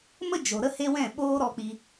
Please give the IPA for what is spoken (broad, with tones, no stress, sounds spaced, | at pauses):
m ə˦ d͡ʒ o˨ ɾ ə˦ h e˦ w ɛ̃˦˨ ɓ oː˦ ɾ ɔ˧ k͡p i˧